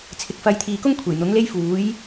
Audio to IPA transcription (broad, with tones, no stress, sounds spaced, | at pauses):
t͡sʰ ɪ˧ k̚ f ɐ˨˧ j t̪ʰ iː˨ k ʊ˥ ŋ kʷʰ e˨˩ j n̪ ʊ˨˥ ŋ l e˥ j f uː˨˥ j